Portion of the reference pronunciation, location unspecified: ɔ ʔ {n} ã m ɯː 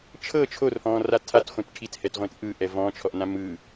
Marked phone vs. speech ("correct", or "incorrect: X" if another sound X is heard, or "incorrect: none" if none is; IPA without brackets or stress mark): correct